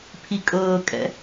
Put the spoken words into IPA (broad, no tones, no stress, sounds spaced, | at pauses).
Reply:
pʰ i kʼ ɤː kʼ ɛ̰